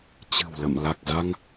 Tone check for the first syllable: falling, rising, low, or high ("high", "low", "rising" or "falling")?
low